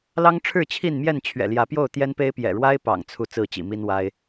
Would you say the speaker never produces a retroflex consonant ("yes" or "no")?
no